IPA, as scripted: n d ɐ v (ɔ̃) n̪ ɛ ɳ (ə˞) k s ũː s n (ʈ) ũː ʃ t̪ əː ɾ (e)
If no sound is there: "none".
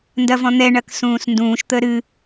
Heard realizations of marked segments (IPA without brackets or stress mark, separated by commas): ɔ̃, ɐ, d, ɨ